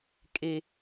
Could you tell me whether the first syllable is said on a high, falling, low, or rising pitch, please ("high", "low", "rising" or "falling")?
low